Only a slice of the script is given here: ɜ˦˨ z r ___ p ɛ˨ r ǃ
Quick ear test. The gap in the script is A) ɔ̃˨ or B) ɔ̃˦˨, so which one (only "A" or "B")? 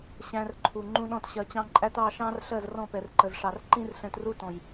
B